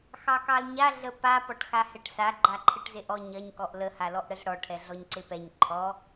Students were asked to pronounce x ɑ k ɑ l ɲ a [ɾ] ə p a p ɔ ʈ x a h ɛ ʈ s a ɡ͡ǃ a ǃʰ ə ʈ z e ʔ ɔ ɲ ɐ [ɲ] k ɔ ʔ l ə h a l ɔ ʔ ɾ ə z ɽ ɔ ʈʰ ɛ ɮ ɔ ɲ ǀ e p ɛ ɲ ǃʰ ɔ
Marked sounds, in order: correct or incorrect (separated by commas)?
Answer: incorrect, correct